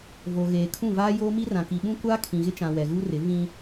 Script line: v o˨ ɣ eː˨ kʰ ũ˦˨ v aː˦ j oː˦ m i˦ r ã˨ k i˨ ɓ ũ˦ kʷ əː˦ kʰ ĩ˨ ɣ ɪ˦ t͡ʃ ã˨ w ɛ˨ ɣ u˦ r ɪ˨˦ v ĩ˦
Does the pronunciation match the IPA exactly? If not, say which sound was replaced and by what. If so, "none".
əː˦ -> aː˦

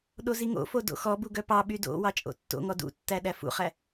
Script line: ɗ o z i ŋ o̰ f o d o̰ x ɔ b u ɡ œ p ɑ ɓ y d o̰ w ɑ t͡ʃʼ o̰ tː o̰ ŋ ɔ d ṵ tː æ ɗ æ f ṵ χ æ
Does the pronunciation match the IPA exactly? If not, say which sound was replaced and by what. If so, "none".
none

